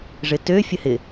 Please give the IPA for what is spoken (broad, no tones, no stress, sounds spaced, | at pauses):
ʐ ɪ t ø fʲ ə h ɪ